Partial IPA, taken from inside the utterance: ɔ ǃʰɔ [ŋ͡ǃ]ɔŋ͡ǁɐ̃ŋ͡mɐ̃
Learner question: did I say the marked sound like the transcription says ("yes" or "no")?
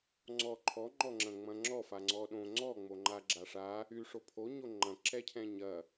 yes